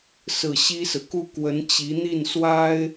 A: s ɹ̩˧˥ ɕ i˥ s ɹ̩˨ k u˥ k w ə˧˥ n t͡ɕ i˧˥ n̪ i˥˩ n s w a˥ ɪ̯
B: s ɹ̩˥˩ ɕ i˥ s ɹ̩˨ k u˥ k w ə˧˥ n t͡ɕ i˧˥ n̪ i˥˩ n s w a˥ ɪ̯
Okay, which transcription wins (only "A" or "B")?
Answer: B